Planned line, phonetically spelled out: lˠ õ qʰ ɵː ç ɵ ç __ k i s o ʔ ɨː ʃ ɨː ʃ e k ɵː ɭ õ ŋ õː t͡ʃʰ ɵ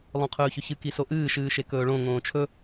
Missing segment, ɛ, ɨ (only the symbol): ɨ